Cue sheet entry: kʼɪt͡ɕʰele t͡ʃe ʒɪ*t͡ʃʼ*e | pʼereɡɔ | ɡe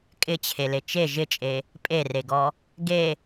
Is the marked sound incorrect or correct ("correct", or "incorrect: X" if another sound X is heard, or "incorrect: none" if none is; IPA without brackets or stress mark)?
correct